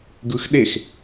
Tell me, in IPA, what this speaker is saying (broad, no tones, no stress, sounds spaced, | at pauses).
ɡ ɯ x ɗ e x